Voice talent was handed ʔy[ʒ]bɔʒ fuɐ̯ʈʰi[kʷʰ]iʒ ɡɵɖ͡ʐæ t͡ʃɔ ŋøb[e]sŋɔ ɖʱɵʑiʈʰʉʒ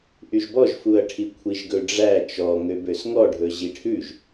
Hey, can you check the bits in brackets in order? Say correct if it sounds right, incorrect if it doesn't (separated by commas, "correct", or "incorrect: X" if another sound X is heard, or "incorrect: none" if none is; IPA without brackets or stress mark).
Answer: correct, correct, incorrect: ø